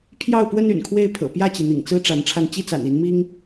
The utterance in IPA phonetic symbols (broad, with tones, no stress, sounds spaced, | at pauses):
pʰ j ɑ˥˨ ʊ̯ p w ə˦ n y̰˨˩ n kʰ w e˥˨ ɪ̯ pʰ ɤ̰˨˩ p j ä˥˨ t͡ɕ i˩ n̪ ḭ˨˩ ŋ t͡s ɹ̩˦ ʈ͡ʂ a˨˦ n ʈ͡ʂʰ a˧ n t͡ɕ i˦ t͡s a̰˨˩ n i˨˦ n m i˦ ŋ